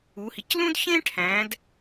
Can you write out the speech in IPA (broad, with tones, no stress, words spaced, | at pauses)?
u˩˧hi˩˧c lũ˥d çẽ˥ʈʰæ̃˩˧d